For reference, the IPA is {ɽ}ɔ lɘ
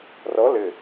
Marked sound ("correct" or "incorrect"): incorrect